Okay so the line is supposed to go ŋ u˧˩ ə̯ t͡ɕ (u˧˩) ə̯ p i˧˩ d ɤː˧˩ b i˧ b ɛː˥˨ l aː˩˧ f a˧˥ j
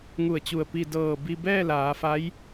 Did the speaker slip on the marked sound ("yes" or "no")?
no